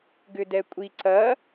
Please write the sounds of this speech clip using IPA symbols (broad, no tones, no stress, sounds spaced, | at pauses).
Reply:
ɡ ʏ d ɛ kʷʼ i ǀ ɐ